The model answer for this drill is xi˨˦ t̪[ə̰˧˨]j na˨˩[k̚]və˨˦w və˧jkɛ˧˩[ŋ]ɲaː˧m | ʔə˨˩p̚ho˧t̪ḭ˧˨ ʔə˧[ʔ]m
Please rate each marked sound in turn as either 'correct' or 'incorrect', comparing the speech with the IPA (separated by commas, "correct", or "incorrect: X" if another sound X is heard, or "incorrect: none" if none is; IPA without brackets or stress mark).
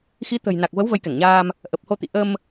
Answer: incorrect: ə̤˨˩, correct, correct, incorrect: none